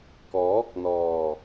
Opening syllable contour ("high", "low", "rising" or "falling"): rising